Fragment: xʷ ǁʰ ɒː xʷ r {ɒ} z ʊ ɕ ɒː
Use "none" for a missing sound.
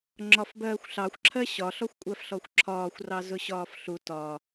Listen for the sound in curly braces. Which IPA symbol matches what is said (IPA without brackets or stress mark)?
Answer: ɑ